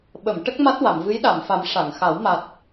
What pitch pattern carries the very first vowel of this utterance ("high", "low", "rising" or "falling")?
low